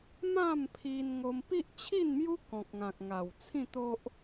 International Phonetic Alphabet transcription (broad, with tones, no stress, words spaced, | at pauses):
mã˥˧mpʰi˧n ŋo˧mpi˦ʔt͡ɕʰi˥˧nmju˦ kɔ̃˨k̚ŋã˨k̚ŋa˨˩w t͡sʰĩ˥˧t̪o˦ʔ